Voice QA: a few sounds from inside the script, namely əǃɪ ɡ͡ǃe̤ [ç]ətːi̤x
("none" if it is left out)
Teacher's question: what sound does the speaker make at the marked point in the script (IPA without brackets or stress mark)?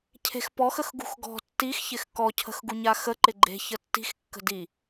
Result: ç